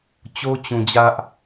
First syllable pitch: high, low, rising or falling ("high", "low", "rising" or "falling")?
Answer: high